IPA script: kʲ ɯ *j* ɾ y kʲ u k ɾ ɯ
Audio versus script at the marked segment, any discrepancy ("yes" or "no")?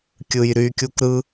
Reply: no